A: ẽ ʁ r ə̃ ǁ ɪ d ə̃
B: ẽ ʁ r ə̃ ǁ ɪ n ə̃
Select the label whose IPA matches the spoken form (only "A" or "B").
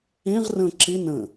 B